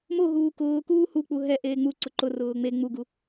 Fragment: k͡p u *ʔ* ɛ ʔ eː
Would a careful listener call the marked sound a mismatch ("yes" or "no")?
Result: yes